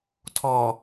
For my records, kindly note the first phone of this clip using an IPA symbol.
tʰ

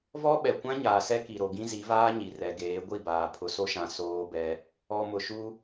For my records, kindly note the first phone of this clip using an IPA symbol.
v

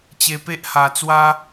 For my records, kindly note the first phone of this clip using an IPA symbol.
t͡ɕ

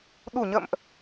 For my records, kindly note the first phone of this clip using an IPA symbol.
ɗ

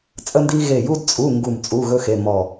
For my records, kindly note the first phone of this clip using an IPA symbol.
t͡sʼ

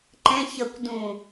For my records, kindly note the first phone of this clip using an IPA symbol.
ǃ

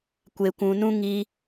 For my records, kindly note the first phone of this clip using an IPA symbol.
kʷ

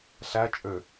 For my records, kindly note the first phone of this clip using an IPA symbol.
ɬ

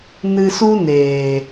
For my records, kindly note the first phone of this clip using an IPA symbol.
n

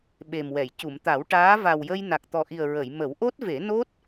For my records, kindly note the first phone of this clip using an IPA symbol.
ɓ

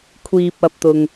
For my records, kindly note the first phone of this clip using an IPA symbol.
kʷʰ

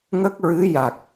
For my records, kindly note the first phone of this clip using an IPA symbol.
ŋ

